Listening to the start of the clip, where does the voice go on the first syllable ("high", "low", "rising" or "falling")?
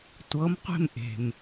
rising